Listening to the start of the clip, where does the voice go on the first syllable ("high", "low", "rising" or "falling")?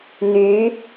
rising